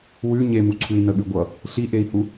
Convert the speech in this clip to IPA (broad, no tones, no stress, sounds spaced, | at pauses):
w ʉ ɲ e m u ǀʰ ʉ i̯ n ə ɠ ʉ ɡʷ ʌ | ɬ i ʔ e i̯ h u